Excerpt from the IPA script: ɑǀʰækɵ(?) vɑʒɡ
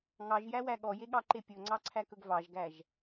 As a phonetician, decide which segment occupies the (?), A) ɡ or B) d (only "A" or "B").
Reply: A